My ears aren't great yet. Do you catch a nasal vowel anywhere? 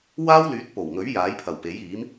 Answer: no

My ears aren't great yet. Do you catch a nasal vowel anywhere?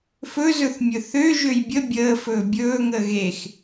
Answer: no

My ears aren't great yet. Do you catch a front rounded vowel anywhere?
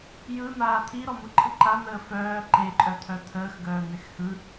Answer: yes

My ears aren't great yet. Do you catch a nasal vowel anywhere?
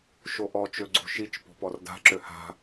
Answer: no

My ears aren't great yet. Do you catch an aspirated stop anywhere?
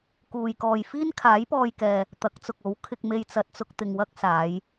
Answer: yes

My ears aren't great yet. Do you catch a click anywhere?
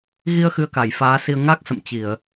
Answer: no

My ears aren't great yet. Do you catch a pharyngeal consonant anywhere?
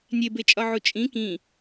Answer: yes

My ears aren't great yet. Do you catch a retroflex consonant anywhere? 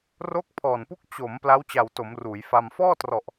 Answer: no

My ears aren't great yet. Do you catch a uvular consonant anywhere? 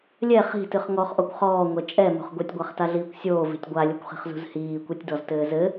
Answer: yes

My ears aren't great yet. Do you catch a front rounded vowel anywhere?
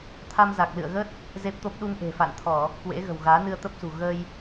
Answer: no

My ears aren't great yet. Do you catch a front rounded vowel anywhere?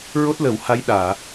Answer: no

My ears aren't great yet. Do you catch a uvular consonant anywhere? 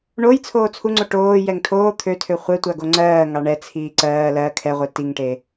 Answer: yes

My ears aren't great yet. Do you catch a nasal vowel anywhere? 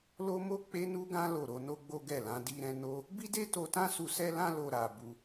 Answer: yes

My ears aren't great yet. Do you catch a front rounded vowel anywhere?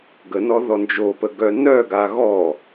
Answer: yes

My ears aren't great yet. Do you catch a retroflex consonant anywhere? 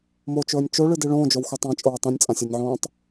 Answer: yes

